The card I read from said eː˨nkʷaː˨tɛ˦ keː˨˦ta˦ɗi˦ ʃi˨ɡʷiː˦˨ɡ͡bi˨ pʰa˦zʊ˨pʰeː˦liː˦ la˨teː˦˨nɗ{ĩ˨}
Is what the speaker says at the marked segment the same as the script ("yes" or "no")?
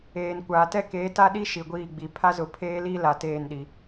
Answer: no